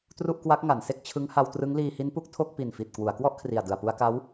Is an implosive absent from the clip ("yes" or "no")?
yes